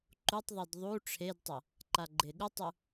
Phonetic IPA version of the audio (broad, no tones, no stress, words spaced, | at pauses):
ǃutˤðˤid ðˤu ʈ͡ʂʰedtˤɐ | ǃaɡ͡ǃeɠutˤu